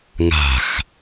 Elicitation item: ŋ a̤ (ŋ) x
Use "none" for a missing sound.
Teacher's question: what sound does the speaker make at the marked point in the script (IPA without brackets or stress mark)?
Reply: none